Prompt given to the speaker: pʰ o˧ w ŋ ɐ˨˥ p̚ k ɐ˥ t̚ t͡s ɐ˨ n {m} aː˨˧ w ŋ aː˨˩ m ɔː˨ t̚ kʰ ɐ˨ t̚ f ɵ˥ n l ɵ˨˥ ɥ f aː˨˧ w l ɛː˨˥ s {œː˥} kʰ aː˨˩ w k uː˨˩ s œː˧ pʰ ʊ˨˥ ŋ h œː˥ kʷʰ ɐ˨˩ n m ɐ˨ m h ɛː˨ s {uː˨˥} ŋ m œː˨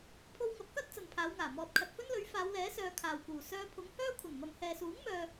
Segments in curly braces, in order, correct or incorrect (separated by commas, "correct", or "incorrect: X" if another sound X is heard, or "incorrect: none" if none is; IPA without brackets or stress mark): incorrect: pʰ, incorrect: œː˨, correct